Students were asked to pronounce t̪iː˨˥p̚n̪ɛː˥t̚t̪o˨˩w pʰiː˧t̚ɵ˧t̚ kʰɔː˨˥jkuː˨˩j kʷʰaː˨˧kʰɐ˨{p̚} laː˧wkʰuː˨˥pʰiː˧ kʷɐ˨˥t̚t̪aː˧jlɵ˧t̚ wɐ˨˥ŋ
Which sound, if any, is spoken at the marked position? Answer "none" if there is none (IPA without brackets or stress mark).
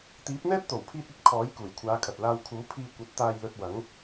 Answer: t̚